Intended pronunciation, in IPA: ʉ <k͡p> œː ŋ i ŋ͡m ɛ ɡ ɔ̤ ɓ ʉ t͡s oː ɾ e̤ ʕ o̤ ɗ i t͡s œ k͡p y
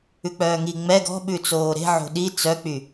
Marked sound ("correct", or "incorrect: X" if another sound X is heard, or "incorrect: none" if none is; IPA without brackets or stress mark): correct